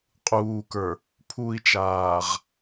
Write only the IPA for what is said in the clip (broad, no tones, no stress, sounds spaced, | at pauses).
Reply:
qʼ uː k ə˞ | pʰ u i̯ t͡ʃ aː ʁ